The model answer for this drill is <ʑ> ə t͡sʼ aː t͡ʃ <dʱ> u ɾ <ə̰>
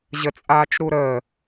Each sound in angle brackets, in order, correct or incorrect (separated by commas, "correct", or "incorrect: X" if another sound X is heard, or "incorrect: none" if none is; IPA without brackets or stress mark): correct, incorrect: ɾ, incorrect: ə